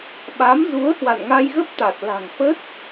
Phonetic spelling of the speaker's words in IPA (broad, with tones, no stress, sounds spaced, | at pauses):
ɓ a˨˦ m z u˨˦ ə̯ h w a̰˧˨ n ŋ a˧ j ɣ ə˦˥ p̚ t̪ a˨˩ t̚ l a̤˨˩ ŋ f ə˦˥ t̚